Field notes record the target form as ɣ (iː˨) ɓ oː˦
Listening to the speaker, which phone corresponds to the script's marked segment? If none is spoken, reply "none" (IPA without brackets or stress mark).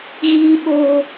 iː˦